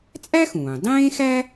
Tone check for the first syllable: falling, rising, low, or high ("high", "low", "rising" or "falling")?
high